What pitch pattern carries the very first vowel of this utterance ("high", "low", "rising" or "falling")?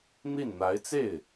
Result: falling